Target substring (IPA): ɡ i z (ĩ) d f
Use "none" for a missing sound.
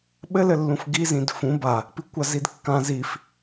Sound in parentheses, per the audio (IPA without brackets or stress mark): ĩ